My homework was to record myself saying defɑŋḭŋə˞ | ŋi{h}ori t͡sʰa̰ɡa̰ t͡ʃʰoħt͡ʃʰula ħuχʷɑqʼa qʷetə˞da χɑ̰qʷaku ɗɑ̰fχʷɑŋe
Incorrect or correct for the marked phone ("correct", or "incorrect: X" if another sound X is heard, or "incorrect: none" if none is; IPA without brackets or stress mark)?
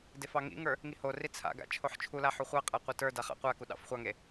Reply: correct